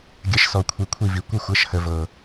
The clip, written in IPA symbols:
ɡʲə˨˥ʃ sɔ˨ kʷʰi˨kʷʰi˦˨vi˨ kʷə˦˨xʷɤ˨˥ʃhə˨ vɤ˨

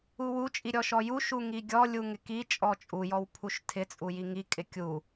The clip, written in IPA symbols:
uwu t͡ʃʼiɾʲɔʃɔju ʃuŋiɡʲɔ lʲuŋɪki t͡ʃʼɔt͡ʃʼu jɔwpʰuʃtʰɪ t͡sʼujiŋi kʼɪkʲu

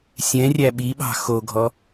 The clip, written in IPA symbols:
sʲɛ̃rʲæ ɓiɓɑ̤ xoɡʱɔ

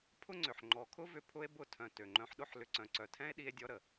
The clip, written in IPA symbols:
pʰʊ˦ŋ͡ǀʏ˨ħ ŋ͡ǃɔ˨kʰʊ˦vʏ˧ pʰʊ˦e̯bʊ˦˨ tʰœ̃˨ tø˨ŋ͡ǃœ̃˧ħɗʊ˦ħ lʏ˨ǀœ̃˨ǀœ˨ tʰɛ̃˦e̯ɗi˧e̯dʲɔ˧ ɾə˨

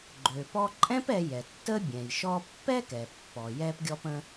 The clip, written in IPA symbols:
ɡ͡ǃø˩pɔ˧ǃʼɛ̃˥p ɛ˧jɛ˩tːə˥bʲɛ̃˩j ʃɔ˧pːɛ˥kɛ˩ pːɔ˩jɛ˧pɡʲɔ˧p ə̃˥

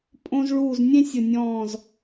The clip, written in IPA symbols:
pʼõ˧zɭuː˧˩z nʲẽ˥sʲʊ˧˩nʲɔ̃ː˧˩z

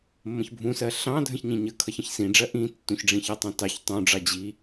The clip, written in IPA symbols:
mːə̃çbʱũsɜ ɬɑ̃ dʱə̃çɲĩɲəkʰʌç ə̃çsĩɖ͡ʐɜ ʔĩ tːũçɖ͡ʐĩçətˤɑ̃ tɑç tˤũɖ͡ʐɑ d͡ʑi

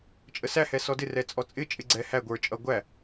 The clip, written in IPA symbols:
t͡ʃʼəsæhɛ sɔdɪrɛ t͡sʼɔt͡sʼɪt͡ʃʼɪ ɡ͡ǀɛ hæ ɡʷə˞ t͡ʃʼʌ ɡʷæ

